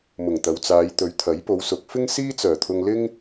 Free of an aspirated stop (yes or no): no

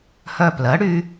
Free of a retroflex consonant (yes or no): no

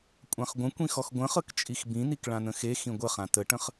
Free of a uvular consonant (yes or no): no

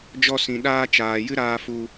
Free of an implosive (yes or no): no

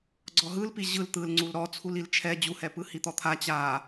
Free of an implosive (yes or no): yes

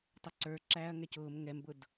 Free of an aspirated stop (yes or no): yes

